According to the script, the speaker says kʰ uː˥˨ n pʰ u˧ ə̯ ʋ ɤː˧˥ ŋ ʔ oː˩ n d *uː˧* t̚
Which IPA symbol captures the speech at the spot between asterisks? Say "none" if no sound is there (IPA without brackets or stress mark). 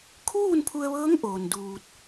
uː˧